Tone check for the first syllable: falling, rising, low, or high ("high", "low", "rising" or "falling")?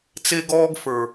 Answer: high